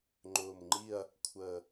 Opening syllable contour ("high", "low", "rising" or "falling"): low